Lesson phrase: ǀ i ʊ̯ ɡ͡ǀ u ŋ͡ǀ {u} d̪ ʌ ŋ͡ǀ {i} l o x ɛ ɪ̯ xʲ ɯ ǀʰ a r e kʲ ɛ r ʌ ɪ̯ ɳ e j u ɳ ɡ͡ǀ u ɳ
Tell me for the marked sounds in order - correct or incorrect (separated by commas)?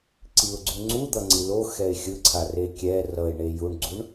correct, correct